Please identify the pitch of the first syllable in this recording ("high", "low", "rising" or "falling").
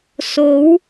rising